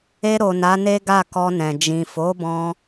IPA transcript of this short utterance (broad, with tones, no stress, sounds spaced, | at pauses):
e˧ ɾ o˨ n a˨˦ n e˦ ɡ a˦˨ k ɔ˧ n ɛ̃˨ d͡ʒ ĩ˨ f o˨˦ b ɔ̃˧